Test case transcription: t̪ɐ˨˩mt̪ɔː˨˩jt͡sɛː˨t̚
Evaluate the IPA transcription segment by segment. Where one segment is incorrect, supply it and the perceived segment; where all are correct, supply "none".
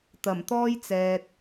ɔː˨˩ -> ɔː˥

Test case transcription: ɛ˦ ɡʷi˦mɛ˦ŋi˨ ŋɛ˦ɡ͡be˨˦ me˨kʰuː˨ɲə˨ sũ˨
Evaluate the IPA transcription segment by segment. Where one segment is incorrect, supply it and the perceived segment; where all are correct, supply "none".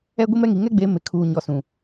ə˨ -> ɔ˨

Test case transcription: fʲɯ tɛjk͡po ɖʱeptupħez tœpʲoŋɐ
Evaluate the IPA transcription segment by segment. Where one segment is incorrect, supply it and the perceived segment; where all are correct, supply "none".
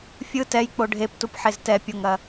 œ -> ɛ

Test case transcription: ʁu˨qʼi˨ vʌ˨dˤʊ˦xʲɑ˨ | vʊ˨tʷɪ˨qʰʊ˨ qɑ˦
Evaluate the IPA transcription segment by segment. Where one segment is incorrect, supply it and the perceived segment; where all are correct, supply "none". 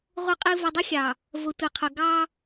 q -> ɡ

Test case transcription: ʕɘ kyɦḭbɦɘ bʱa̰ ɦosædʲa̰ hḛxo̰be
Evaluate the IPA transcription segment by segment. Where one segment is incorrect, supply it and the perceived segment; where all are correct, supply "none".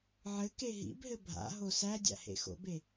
y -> e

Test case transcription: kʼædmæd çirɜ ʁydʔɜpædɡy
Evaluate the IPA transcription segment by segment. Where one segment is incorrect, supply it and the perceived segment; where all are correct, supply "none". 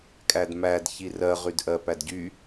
ɡ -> ɟ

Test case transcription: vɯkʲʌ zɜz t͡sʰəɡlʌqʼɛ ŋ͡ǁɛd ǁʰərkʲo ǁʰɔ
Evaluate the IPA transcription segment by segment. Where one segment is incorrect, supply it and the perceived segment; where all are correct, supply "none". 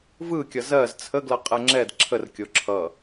ɔ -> ʌ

